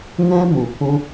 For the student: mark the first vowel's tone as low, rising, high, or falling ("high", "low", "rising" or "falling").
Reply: high